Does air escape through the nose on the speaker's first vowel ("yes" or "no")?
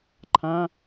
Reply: yes